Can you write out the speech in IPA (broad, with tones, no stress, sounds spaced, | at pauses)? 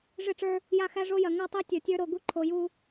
ʐ ɪ˦˨ ʈ͡ʂ ə˞˦ | j a˦ x æ˦ ʐ o˦ j ɐ˨ ŋ ɐ˦˨ tˤ ɛ˦ tʲ ə˞˨ tʲ ə˞˦ ɾ o˨ ɡ u˦ ǃʰ o˨ j u˦